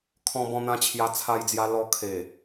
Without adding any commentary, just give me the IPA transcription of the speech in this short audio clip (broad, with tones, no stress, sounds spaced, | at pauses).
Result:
kʰ ɔ̃˧ b ɔ̃˧ n̪ ã˧ t͡ɕʰ j a˧ t͡sʰ a˧ j d͡z j a˧ l ɔ˧ kʰ e˨˩